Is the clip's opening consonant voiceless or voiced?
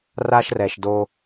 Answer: voiced